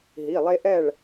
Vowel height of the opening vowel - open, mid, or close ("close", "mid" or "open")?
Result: close